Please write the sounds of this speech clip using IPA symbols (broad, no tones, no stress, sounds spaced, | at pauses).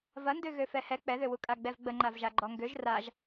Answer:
v ɐ n d ø ɣ ø f ɛ h ɛ k͡p ɛ ð ø w u kʼ a ɡ͡b ɛ v ɡ͡b ə ŋ͡ǃ a v ʒ a ɡ͡ǃ ɔ ŋ ɡ ø ʒ r a ʒ